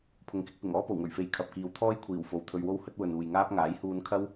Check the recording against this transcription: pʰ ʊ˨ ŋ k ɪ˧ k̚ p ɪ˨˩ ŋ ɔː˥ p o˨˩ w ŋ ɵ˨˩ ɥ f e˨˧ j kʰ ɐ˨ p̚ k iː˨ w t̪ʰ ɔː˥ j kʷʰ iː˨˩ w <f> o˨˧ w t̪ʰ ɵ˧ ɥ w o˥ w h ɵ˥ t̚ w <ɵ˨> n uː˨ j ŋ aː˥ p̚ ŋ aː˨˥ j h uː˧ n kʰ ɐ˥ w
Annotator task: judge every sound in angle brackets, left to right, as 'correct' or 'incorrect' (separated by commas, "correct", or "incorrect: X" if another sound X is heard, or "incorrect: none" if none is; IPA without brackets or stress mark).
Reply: correct, correct